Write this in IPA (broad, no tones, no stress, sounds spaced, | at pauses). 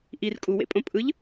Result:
ʔ i r kʼ u w ḛ pʼ õ pʼ ɯ ʎ